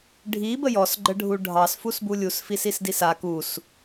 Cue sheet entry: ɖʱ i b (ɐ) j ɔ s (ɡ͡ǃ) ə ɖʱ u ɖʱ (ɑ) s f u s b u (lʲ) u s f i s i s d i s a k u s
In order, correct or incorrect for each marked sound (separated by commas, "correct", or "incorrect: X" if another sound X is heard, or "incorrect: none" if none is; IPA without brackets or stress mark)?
incorrect: ə, correct, correct, correct